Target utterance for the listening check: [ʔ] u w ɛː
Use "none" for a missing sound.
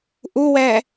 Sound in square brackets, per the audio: ʔ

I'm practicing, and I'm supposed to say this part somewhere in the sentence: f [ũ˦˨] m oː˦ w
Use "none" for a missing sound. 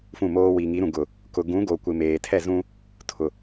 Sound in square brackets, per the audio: ũ˦˨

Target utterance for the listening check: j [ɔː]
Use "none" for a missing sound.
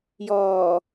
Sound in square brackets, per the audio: ɔː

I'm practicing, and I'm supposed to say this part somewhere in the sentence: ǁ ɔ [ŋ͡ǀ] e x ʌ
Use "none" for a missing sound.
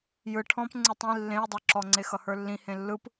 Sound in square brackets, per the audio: ŋ͡ǀ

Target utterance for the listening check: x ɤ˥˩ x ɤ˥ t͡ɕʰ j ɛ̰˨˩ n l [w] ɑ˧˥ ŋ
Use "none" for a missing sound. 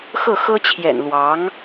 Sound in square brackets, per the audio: w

